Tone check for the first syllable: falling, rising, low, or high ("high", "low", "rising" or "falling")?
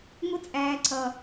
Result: high